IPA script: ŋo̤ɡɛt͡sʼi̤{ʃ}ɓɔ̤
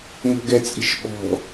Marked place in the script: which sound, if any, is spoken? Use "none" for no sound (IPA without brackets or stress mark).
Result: ʃ